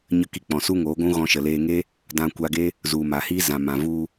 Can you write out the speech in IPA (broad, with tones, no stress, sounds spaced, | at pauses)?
ɲ ə˦ k i˧ k͡p ɔ̃˨ s u˦ ŋ oː˨˦ ɡʷ ũ˦ ɣ ɔ̃˧ ʃ ə˨ l eː˧ ŋ e˦ | d ã˧ kʷ a˧ ɡ e˦ | z u˨ m a˨ h iː˦ z ã˨ m ã˨ v u˧